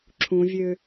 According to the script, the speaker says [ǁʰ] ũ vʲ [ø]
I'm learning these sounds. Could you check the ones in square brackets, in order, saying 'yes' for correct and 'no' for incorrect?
yes, yes

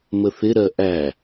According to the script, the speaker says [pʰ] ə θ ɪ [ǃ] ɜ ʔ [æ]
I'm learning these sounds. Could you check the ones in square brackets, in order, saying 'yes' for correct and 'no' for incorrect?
no, no, yes

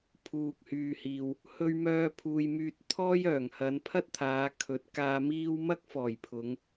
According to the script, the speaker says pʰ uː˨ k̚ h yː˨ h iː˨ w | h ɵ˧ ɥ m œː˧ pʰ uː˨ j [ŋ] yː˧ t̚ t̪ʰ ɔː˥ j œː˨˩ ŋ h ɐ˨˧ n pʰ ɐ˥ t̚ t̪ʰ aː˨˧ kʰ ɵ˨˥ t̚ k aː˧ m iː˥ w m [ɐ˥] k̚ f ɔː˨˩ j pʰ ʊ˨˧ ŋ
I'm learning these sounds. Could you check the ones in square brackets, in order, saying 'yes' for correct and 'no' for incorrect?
no, yes

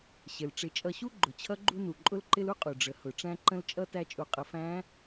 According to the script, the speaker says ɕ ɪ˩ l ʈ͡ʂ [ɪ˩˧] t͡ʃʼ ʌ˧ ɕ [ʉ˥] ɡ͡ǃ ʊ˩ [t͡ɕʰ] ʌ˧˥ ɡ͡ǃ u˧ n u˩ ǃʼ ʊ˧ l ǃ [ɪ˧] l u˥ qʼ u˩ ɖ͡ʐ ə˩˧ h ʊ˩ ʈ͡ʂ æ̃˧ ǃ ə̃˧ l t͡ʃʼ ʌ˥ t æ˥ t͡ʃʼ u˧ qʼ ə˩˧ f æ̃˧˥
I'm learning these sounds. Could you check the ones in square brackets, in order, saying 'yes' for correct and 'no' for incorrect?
yes, no, yes, yes

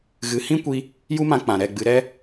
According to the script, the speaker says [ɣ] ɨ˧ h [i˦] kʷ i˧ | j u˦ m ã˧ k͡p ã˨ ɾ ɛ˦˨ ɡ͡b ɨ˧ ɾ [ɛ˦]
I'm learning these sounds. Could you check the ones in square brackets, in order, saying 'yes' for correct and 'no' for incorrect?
yes, no, yes

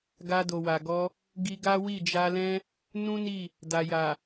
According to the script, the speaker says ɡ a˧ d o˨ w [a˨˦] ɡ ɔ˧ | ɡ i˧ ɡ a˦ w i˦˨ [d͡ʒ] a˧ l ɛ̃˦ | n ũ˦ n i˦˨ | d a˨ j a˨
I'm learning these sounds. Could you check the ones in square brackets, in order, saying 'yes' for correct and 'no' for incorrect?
no, yes

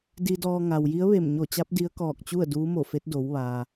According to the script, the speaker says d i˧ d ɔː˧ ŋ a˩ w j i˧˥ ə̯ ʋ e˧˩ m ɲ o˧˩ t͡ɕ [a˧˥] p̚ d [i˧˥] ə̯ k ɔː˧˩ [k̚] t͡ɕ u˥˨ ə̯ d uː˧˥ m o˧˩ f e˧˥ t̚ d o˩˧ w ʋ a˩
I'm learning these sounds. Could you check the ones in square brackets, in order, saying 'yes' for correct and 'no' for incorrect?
yes, yes, yes

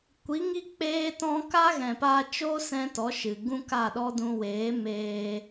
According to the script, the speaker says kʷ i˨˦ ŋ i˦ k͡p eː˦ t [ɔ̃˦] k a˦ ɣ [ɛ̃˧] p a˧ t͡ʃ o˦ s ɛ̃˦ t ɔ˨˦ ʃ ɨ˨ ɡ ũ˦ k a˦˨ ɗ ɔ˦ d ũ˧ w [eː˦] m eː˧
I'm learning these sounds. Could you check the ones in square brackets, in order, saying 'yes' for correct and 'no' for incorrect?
yes, no, no

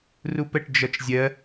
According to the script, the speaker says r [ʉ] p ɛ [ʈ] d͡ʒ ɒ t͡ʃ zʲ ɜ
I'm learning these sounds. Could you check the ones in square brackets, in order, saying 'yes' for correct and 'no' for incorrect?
no, yes

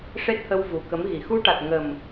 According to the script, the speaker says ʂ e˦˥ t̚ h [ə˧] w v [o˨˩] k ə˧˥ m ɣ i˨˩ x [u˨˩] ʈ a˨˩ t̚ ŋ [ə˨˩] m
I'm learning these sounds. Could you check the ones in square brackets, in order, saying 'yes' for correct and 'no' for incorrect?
yes, no, no, yes

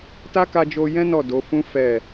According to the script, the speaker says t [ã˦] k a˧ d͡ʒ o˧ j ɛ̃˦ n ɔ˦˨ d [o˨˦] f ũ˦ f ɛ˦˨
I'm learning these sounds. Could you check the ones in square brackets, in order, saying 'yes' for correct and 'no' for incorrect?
no, yes

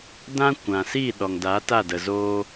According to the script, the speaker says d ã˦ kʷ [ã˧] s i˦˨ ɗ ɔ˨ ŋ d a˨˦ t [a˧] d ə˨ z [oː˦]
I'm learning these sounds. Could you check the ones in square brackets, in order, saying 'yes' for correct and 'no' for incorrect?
no, no, no

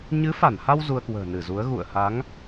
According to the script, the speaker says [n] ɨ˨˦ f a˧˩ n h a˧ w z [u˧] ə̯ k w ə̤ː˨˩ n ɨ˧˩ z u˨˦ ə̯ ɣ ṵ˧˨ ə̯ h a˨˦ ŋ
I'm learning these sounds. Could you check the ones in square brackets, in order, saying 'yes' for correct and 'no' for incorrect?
no, yes

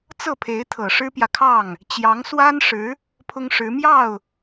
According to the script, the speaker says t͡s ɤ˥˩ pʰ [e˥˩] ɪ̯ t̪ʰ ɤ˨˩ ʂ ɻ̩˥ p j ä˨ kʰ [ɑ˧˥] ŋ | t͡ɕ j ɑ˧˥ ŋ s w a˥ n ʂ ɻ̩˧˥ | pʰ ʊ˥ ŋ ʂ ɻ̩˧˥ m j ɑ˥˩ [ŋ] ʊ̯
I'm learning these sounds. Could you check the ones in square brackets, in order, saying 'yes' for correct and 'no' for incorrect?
no, no, no

